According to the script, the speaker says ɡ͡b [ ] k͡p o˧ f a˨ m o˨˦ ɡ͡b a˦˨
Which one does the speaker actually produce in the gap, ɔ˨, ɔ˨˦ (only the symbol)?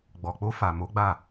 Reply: ɔ˨